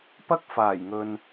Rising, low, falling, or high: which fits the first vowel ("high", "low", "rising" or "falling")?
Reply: high